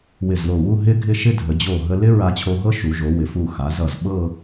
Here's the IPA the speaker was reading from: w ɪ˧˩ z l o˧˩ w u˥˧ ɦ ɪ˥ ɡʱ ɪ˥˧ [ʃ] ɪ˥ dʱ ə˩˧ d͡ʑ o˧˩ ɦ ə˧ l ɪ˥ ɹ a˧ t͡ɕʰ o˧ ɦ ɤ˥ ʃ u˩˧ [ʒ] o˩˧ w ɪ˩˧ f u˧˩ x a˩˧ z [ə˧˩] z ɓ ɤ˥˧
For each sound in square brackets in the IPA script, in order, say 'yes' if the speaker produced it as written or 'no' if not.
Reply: yes, yes, no

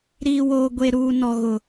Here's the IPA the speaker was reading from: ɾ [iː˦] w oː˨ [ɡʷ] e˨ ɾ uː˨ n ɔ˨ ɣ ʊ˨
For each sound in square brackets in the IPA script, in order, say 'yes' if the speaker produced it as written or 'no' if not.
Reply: no, yes

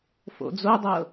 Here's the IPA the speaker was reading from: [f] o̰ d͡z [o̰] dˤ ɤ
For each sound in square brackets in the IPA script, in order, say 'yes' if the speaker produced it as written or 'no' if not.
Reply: yes, no

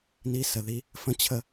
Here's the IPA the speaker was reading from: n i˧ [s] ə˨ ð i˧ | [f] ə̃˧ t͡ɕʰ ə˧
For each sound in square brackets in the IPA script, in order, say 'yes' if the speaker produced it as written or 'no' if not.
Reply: yes, yes

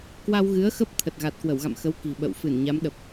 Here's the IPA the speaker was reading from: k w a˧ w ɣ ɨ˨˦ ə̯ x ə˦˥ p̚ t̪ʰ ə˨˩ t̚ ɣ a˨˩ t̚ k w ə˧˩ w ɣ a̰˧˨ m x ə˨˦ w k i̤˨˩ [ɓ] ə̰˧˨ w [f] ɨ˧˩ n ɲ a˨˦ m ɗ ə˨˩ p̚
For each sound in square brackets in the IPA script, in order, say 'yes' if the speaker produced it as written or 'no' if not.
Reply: yes, yes

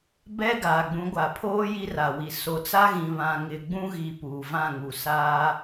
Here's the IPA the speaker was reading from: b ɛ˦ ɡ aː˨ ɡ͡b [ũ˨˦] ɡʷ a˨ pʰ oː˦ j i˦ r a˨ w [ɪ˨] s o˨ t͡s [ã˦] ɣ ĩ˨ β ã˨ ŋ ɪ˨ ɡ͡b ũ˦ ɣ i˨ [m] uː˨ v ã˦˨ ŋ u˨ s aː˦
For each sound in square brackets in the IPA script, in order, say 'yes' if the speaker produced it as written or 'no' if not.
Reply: yes, no, no, no

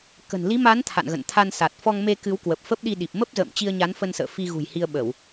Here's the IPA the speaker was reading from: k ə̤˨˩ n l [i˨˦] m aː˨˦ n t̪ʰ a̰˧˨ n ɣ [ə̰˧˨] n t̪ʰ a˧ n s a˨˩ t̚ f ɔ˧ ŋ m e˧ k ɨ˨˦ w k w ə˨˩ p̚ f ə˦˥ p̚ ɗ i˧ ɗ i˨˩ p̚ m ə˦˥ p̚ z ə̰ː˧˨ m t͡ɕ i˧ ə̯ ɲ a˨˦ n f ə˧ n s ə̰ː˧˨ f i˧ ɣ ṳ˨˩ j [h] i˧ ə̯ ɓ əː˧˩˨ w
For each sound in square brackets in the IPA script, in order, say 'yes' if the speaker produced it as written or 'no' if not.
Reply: yes, yes, yes

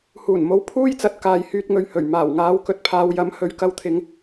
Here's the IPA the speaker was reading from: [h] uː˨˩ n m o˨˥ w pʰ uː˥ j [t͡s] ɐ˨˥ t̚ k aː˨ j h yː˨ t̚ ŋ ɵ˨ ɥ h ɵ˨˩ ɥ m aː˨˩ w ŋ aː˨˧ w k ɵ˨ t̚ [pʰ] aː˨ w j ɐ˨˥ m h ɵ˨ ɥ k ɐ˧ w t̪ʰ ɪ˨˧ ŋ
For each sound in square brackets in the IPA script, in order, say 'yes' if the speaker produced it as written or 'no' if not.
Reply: yes, yes, yes

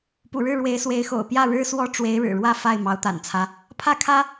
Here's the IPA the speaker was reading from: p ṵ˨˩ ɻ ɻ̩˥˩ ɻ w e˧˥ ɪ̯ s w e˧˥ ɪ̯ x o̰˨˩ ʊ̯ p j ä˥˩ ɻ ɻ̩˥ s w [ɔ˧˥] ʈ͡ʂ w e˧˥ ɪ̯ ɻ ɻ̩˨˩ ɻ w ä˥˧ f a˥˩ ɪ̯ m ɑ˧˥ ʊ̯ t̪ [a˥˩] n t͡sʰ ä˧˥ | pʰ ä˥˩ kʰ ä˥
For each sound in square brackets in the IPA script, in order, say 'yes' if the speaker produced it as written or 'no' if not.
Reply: no, no

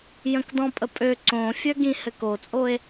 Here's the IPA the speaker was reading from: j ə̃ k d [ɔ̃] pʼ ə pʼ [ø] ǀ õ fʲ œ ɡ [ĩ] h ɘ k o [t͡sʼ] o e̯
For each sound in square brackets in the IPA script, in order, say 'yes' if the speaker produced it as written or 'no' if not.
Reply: yes, yes, yes, yes

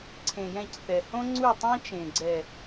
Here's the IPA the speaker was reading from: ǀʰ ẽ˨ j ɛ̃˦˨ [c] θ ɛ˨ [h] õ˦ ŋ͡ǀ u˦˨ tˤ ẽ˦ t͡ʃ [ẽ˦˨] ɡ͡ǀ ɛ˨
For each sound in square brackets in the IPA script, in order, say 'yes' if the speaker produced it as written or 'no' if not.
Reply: yes, yes, no

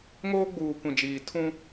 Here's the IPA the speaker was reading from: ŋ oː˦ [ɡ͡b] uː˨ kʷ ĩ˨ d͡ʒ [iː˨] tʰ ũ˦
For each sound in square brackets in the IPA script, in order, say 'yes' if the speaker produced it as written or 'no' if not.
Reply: yes, yes

